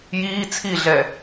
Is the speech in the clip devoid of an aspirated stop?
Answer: no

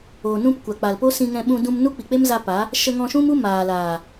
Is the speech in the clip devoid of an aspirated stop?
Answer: yes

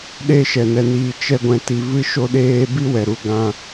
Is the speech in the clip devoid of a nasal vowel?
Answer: no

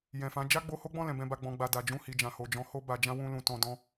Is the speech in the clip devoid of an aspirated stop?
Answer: yes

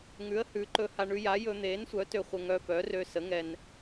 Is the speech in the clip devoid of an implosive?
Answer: yes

